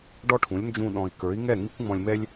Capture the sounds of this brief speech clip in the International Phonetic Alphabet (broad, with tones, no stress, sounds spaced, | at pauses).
ɖ ɔ˦ ʈʰ ũ˨˦ lʲ n d͡ʒ ũ˧ ɗ ɔ̃˨ i̯ k ə˞˨˦ i̯ ŋ ɛ˦˨ ŋ i˦ kʷ ŋ͡m ɔ̃˧ lʲ m ɛ˦ lʲ